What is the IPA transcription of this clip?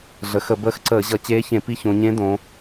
ɮə˩˧xə˧˩˧ bəː˧˥xǀəː˧˩˧ʑʌ˧˩˧ t͡ɕeː˧˥çẽ˧˩˧pi˧˥ çõ˩˧ɲẽ˧˥dõ˩˧

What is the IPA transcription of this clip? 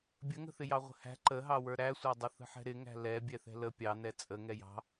bʲəŋə̤θɪjɑ ʁʷə̤hæ̤ ǃəɦɑwə˞ ɾæsʷædˤə θə̤ħɛ̤ɾɪŋæ̤ lɛ bʲɛθɛ̤lə pʲɑ nɛt͡sʼə ŋɛjɑ̤

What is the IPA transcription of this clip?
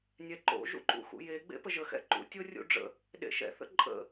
nʲɛǃo̰ ʒṵǃṵxṵje ɡ͡bḛpəʒə xɛ̰ǃṵ tʲorʲṵɖ͡ʐə̰ | ɗḛʃɛ̰ θə̰ǃʼə̰

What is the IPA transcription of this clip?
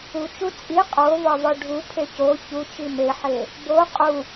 ut͡ʃu t͡sʼi qʼovɒvɒ ɖʱupʰe co çut͡ʃi meħe | bo qʼu

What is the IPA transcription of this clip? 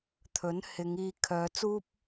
t̪ʰɵ˨˥nhɪ˨˧ŋiː˧ kʰœː˨˧t͡suː˥p̚

